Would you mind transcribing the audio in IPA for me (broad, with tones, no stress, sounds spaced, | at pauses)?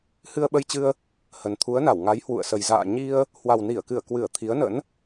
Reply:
h ɨ˧ ə̯ ɓ ə˧ j t͡ɕ ɨ˧ ə̯ | h ə˨˩ n t̪ʰ u˨˦ ə̯ n a˧˩ w ŋ a˨˦ j h w ṵ˧˨ ə̯ s ə˨˩ j z a̰ː˧˨ ɲ i˧ ə̯ | h w a˨˩ w n i˧˩ ə̯ k ɨ˧˩ ə̯ k w ɨ˧˩ ə̯ t̪ʰ i˨˦ ə̯ n ə̰˧˥ n